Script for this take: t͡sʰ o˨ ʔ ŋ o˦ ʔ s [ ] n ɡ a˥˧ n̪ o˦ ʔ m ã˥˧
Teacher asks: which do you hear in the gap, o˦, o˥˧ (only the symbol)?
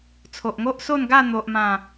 o˥˧